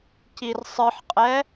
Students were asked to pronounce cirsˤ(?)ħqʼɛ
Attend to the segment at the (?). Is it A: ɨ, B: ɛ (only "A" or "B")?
A